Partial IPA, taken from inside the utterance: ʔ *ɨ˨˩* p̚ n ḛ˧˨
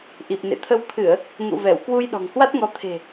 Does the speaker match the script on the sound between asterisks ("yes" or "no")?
no